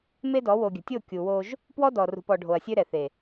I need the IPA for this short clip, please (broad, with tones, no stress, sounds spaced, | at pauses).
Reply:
m e˦ d ɔ˨˦ w o˨ ɡʲ ə̤˨ tʲ o˦˨ kʲ u˨ w o˦ ʒ | p w ɔ˦ d ɔ˨ r ṳ˨ p ɔ˨ ɖʱ o˨ ɐ̯ sʲ ø˦ ɾ ɛ˨ θ e˨